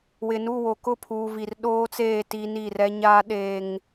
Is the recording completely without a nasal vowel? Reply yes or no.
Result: yes